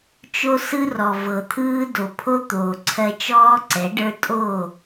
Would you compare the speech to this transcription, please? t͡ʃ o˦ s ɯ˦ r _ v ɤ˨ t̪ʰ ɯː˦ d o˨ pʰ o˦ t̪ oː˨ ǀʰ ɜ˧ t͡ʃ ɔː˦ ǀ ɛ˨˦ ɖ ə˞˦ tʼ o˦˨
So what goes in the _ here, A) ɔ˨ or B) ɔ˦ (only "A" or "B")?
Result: A